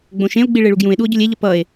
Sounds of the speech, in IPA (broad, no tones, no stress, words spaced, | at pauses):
ɡ͡bõʃẽo̯ɡ͡bi ɭeɭuɡjũe̯ɗuo̯ ɟolʲeʎʌ pʌe̯